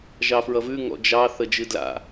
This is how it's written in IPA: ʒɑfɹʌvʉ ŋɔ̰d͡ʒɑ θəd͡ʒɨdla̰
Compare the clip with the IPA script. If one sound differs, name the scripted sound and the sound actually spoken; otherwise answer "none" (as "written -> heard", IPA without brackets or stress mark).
none